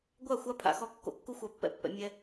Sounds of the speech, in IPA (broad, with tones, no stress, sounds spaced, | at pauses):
ɡʷ a˦˨ xʷ a˦ pʰ a̰˨ x ɔ˦˨ kː o̰˦ kː u˦ xʷ a˨ pː ɛ̰˦ pː ɛ̰˨ mʲ ɛ˦